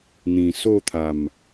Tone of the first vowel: low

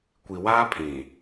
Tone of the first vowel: low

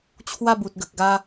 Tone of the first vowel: falling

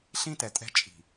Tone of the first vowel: high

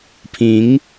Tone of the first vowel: rising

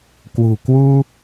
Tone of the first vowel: low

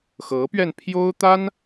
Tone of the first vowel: rising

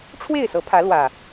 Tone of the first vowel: falling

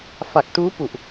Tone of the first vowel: low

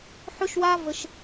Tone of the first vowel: high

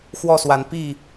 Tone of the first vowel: falling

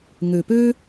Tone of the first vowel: low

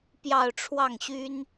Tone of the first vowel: falling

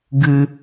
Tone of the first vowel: low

